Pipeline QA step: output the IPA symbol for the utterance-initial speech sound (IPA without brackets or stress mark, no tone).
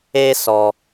e